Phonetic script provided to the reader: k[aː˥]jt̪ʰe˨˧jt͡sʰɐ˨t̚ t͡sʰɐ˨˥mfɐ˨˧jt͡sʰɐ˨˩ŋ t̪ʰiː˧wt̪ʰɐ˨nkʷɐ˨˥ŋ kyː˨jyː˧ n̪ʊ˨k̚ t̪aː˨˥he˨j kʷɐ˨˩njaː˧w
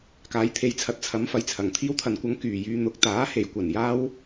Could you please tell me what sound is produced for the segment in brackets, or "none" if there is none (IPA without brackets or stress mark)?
aː˨˧